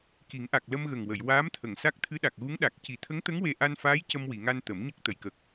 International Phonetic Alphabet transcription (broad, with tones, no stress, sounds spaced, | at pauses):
k i˨˩˦ ŋ ʔ a˨˩ k̚ l ə˧ m ɣ ə˨˩ ŋ w ə˨˩˨ j w aː˧˥ m t̪ʰ ə˨˩˨ ŋ s a˦˥ k̚ t̪ʰ ɨ˧˥ ɗ a˨˩ k̚ ɣ u˧˥ ŋ ɗ a˨˩ k̚ c i˨˩˨ t̪ʰ ə˧˥ ŋ t̪ ə˧˥ ŋ w e˧ ʔ a˧ n f aː˧˥ j c ə˧ m w i˨˩˨ ŋ a˧ n t̪ ə˨˩˦ m ɲ ə˦˥ k̚ t̪ ə˨˩˨ j k ə˨˩ k̚